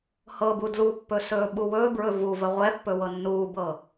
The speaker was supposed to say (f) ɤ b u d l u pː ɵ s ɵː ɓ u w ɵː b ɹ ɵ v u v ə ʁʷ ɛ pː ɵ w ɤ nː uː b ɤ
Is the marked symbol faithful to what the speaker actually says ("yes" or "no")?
no